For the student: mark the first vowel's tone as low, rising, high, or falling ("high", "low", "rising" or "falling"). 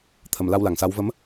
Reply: low